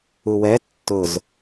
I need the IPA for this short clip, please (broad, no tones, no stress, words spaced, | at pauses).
uwɛ tːʊz